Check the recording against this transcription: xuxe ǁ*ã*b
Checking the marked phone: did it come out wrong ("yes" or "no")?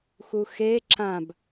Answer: no